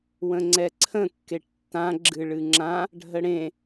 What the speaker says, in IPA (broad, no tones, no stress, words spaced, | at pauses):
wə̃ŋ͡ǀɛǀʰə̃ kːeʈtːã ɡ͡ǁɨɭɨŋ͡ǁã | ɖʱəɽẽ